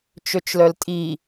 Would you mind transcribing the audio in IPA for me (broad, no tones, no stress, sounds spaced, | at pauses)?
t͡ʃ ø t͡ʃ l œ l tʼ i